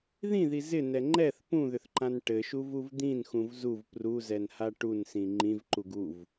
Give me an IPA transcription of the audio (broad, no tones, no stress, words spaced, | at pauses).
ðĩði zɪnɛ ŋ͡ǃɛθ pũðʏθǃãn ʈɘʃuvuv d̪ĩnxũv zuv pruzɛnha ʈunsĩ ŋ͡ǃĩvǃuɡ uv